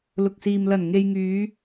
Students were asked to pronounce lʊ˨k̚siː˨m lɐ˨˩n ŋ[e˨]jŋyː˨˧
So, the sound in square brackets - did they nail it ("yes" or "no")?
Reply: yes